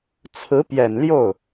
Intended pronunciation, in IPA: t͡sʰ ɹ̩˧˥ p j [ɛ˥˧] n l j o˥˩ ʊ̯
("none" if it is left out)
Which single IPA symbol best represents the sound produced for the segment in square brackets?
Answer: ɛ˨˩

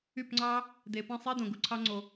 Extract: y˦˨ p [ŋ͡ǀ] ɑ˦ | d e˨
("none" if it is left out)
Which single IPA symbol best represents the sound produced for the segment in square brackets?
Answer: ŋ͡ǀ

